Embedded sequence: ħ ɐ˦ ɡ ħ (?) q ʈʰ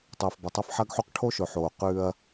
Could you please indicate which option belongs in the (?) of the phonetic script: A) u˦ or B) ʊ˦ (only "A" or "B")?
A